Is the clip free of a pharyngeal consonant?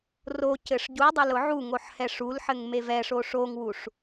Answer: no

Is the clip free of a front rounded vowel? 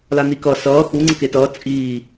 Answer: yes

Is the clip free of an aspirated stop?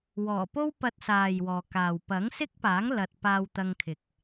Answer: no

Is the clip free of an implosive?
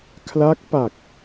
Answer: yes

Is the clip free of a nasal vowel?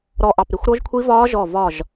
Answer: yes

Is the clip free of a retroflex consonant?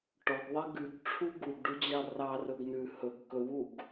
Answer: no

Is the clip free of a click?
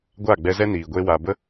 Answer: yes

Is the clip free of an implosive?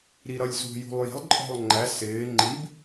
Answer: yes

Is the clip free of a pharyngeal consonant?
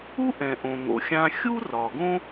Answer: yes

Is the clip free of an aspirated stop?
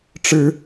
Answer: yes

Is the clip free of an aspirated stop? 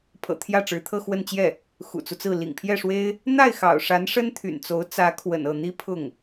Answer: no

